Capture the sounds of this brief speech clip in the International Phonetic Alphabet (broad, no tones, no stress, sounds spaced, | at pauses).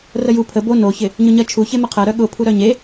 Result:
r ə j u pʰ ə b o n o ç ɪ | ɲ ʊ ɲ ɜ t͡ʃʰ u ç e m ə qʰ ɜ ɾ œ ɠ ʊ pʰ u ɾ œ ɲ e